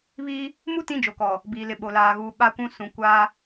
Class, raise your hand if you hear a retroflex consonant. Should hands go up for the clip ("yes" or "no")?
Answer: no